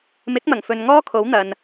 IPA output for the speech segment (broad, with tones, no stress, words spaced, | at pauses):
mɪ˨˥k̚mɐ˨˩ŋ fɵ˨nŋɔː˥kʰo˨˥w n̪ɐ˨n